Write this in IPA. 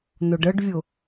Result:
nʊɖəɖvʲʊ

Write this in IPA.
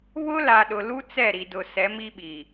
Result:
βʊ˦la˨ ɗʊ˨lu˦ t͡sɛ˦˨ɾi˨dʊ˨ sɛ˨˦mi˦ɓi˨

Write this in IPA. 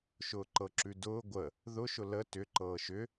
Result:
ʃʊːǃɤǁʉdʊː ɡʷə | ðʊʃʊ lə tʏǃɤː ʃʏ

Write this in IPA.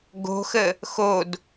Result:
ɡo̤xə | xod

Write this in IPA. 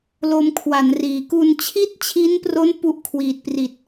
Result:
lo˧mkʰwa˩˦nriː˩˦ ku˧nt͡ɕʰi˥˩t̚t͡ɕʰi˦˥npro˦˥n pu˥˩ʔkʰwiː˨˩t̚pri˨˩t̚

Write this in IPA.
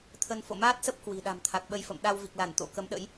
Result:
t̪ʰə˧n fo̰˧˨maː˦˥t̚sə˦˥p̚ kwi̤˨˩ɗa̤˨˩mt̪ʰa˨˩k̚ ɓə˧jfə̰˧˨m ɗa˧wvi˨˩k̚ la˧˩nt̪o̰˧˥kə˨˦mɗə̰˧˥j

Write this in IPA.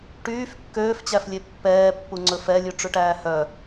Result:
ʈyːf kːøːft͡ɕæflʲe pːɛːpːuŋ͡ǀɵ fɛlʲʉʈ͡ʂʉʈæː hœ

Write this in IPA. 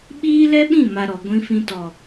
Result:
ɓiː˦lɛ˦ɓĩ˦˨ ma˨ ɾɔ˨ ɡʷĩ˧fĩ˧ tɔ˨

